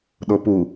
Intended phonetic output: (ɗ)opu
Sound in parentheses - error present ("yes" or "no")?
no